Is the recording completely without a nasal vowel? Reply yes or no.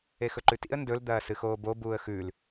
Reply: yes